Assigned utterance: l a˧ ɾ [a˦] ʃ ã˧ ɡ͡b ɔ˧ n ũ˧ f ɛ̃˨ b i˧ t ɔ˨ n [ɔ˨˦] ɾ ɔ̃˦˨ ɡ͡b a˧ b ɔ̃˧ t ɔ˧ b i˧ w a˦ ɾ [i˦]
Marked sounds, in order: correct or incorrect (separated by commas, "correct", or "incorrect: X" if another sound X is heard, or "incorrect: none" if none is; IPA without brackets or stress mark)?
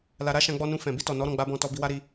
correct, correct, incorrect: i˧